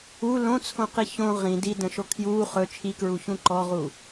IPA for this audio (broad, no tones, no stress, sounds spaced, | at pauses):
u l õ t͡sʰ õ q i ç õ ʁ ĩ d i d ə̃ ʃ o kʰ j uː χ ɵ t͡ʃʰ i k ɹ u ç ũ ǃ ɔ ʁ uː